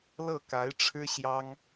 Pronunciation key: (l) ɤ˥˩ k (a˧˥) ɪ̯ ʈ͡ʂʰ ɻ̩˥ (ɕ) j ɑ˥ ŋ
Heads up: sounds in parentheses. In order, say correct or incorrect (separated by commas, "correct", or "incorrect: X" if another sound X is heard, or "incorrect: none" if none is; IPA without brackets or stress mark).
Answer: correct, correct, correct